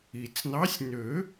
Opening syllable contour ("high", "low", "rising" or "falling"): low